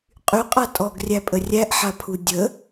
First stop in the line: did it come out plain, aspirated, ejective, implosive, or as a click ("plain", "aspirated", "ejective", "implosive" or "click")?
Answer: ejective